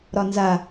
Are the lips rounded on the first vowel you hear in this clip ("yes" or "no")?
yes